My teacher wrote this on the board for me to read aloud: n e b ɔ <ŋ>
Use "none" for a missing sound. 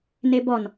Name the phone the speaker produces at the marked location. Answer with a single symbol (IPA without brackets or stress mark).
n